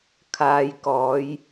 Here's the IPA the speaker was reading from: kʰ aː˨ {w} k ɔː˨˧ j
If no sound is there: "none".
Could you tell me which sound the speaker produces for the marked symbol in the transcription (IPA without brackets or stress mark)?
j